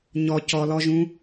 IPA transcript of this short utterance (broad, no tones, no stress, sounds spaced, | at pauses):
ɲ ɔ c ɔ l ɔ ʒ ũ